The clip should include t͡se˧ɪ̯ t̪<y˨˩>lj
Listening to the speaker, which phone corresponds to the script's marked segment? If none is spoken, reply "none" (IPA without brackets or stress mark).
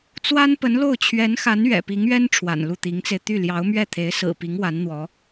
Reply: y˥˩